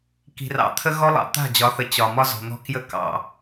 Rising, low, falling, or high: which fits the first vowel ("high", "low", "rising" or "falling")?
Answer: low